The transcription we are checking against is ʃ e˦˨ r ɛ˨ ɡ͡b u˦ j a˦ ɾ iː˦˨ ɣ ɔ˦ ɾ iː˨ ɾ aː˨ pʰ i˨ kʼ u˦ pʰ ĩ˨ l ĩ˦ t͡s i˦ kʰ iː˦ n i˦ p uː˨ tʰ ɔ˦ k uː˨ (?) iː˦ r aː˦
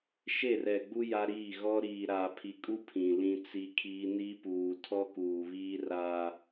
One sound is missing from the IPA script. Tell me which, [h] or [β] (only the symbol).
β